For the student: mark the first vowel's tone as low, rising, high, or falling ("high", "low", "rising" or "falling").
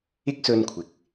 high